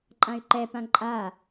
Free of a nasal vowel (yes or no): no